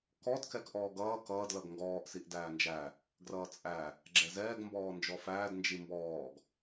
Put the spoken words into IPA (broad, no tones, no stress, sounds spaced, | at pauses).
k ɔ d k ɛ k ʔ ɔː ɡ ʌː k ʌː d l ʌ ɡ ŋ ɡ ɔː ʔ s i ʔ d æː n d͡ʒ æ | ɡ r ʌː t͡sʼ æ | ɡ͡ǁ ɛ z ɛː ɡ m b ɔː n d͡ʒ ɔ f æː d n d͡ʒ i m b ɔː ɡ